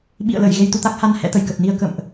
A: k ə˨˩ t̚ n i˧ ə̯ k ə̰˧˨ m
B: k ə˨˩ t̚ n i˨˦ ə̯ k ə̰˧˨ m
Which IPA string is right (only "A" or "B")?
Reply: A